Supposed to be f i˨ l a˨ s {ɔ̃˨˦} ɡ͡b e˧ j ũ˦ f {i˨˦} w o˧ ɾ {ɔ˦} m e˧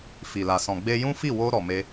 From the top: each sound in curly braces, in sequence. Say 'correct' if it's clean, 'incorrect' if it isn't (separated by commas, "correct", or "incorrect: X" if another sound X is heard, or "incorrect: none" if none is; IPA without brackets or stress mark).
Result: incorrect: ɔ̃˨, incorrect: i˦˨, incorrect: ɔ˨